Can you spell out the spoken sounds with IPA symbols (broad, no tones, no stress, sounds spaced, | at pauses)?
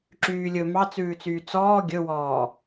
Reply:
ǁ yː lʲ ɵ m ɑ t͡s ʉː t͡s yː t͡s ɔː ɡʲ ɵ w ɔː